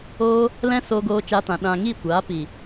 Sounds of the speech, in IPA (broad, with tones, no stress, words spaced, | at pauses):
oː˧ | lɛ̃˦ soː˧ɡoː˧t͡ʃa˧tã˨ ɗã˨ ŋiː˦˨kʷaː˨˦ pi˨